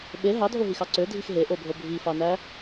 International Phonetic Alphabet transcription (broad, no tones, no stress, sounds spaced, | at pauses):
ɓ e ɦ ɑ dʱ o ɦ i x ɑ ǀ ø dʱ i x ɦ e ʔ o bʱ o bʱ i f ɑ n æ